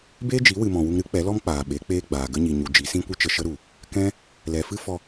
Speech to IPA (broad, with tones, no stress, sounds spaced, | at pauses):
b eː˦ d͡ʒ i˨˦ w ɨ˨ m ɔ̃˨ w u˧ ŋ ɾ ɨ˨˦ k͡p ɛ˨˦ l ɔ˦ m k͡p aː˨ ɓ e˨˦ k͡p eː˦ ɡ͡b aː˨ ɡ ə˦ ɲ i˨ ɲ u˨ d͡ʒ i˨˦ s ĩ˦ kʷ ɨ˦ t͡ʃ ə˧ ʃ ə˦ ɾ u˨ | k ɛ̃˦ | l ɛ˨ f ɨ˦ f ɔ˧